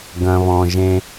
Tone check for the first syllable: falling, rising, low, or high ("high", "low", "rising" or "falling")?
low